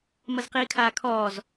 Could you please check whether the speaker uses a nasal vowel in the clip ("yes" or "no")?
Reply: no